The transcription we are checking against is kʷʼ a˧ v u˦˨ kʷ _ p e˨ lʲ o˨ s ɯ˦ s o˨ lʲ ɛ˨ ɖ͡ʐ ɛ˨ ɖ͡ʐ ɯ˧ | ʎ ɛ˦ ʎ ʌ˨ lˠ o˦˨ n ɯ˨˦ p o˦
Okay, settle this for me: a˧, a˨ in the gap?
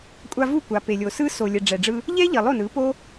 a˨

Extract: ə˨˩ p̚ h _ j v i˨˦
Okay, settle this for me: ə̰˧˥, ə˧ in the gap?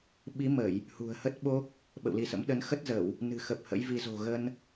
ə̰˧˥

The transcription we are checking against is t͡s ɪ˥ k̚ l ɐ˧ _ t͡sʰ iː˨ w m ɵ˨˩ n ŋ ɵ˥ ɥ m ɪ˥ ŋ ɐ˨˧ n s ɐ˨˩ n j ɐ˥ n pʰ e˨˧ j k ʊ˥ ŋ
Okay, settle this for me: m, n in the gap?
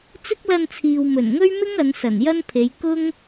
n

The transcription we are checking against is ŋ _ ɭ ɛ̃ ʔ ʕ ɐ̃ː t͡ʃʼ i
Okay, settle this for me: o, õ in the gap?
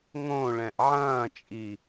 õ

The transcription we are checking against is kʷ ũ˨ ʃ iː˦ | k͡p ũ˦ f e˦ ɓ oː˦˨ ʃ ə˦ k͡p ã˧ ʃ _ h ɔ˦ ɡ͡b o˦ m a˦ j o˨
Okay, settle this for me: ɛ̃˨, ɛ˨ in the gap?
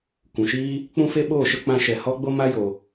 ɛ˨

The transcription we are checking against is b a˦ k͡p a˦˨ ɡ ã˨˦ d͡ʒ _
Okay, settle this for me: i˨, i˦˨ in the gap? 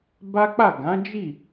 i˦˨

